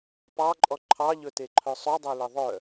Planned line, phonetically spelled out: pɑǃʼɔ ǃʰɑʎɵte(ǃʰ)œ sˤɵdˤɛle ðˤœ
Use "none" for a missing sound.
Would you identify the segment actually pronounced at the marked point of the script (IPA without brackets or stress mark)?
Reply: ǃʰ